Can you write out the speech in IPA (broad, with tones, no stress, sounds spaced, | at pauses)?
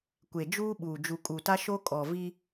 kʷ e˨ d͡ʒ uː˦ ɓ uː˨ d͡ʒ u˨ kʼ u˨ t a˦ ʃ o˦ kʼ ɔ˨ v i˦